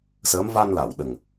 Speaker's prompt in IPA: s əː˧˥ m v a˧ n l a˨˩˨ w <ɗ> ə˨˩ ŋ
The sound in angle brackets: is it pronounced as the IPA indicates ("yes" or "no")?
yes